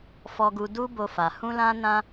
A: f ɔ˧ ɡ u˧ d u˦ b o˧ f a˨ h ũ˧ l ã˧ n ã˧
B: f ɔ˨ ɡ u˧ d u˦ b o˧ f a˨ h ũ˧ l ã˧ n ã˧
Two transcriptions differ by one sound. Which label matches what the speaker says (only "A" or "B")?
A